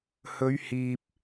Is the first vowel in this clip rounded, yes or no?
yes